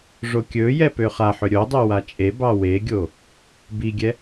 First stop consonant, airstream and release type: plain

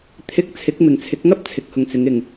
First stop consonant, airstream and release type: aspirated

